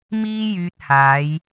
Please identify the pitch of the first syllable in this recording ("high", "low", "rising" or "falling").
high